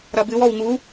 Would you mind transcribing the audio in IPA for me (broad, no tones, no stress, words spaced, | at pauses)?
ɾɐbɨwɔw ŋu